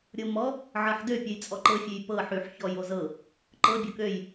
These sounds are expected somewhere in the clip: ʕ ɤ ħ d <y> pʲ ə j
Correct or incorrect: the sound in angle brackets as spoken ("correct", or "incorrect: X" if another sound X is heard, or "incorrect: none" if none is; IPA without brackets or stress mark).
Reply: incorrect: ø